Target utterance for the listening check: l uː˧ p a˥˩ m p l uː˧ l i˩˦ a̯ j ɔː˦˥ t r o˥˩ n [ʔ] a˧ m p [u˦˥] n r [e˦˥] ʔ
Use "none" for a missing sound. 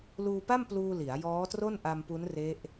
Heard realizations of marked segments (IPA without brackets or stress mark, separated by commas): ʔ, u˦˥, e˦˥